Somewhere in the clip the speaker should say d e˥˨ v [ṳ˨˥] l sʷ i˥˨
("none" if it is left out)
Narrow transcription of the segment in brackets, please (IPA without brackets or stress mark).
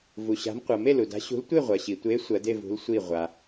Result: ṳ˨˥